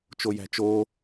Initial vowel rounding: rounded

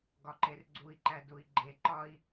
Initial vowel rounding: rounded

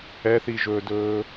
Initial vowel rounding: unrounded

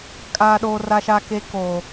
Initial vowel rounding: unrounded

